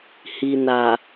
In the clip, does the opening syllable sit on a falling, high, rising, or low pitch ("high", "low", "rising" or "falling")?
low